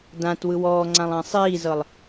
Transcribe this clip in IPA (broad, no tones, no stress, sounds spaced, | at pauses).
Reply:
d ã t w ɯ w ɔː ŋ͡ǀ ã lˠ ã sˤ iː z ɤ lˠ